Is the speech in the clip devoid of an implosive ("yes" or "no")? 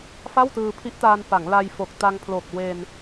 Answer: yes